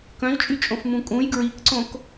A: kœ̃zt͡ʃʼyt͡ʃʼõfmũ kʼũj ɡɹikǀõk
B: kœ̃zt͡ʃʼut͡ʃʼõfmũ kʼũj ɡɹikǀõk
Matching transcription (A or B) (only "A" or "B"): A